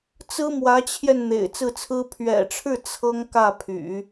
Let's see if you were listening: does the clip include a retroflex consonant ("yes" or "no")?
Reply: yes